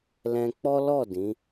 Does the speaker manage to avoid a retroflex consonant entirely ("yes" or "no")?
yes